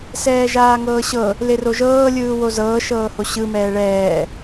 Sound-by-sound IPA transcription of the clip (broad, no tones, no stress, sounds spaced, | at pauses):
s ɛː ʒ aː ŋ ɤː ɕ ɤ | l e r o ʒ ɤː lʲ ɯː w o z ɤː ʃ ɤː h o ɕ ɯ m ɛː ɭ ɛː